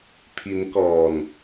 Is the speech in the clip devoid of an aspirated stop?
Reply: no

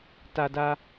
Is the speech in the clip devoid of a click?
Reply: yes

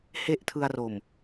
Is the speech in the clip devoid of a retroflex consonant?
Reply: yes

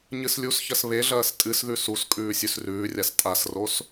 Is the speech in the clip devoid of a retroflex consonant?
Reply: yes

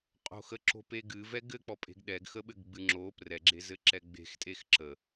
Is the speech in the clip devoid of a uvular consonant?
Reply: no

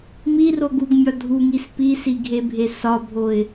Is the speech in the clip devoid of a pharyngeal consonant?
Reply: yes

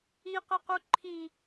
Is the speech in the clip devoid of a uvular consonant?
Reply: no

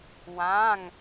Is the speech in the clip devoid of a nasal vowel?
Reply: no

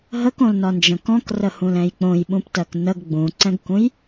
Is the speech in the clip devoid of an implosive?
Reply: no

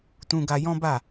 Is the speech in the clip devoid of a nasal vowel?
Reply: no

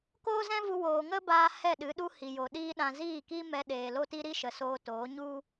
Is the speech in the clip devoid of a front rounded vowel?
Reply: yes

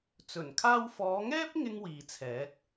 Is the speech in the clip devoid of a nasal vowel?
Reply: yes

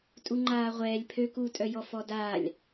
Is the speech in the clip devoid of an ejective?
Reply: no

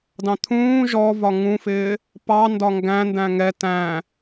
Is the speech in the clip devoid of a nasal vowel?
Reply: no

